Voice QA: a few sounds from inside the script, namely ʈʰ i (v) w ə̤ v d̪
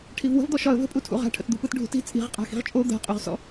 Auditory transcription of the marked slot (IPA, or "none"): v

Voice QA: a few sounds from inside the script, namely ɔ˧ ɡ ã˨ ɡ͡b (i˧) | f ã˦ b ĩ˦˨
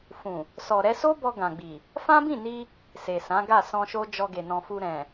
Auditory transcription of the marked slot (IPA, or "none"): i˨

